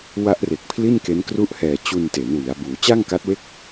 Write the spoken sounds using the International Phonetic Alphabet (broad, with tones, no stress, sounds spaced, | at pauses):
w a˦˥ ʔ r e˨˩ k̚ pʰ l i˥˩ n k e˦˥ n k r u˥˩ ʔ h ɛː˧ t͡ɕ u˧ n t e˩˦ n w i˩˦ a̯ b uː˩˦ t͡ɕ a˥˩ ŋ k a˦˥ t̚ w e˥˩ k̚